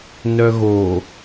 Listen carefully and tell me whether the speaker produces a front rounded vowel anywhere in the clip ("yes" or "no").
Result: yes